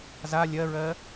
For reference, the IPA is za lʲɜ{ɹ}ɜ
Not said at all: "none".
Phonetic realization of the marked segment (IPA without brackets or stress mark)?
ɹ